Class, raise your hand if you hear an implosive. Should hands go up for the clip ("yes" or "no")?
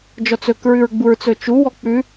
no